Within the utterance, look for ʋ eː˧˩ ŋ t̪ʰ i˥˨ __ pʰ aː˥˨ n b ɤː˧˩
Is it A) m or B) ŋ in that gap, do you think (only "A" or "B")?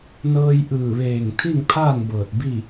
B